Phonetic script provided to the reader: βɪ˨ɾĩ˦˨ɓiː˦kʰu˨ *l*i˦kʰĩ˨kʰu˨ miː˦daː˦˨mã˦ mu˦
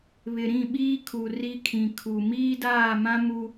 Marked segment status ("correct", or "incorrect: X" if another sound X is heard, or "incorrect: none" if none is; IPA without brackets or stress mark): incorrect: r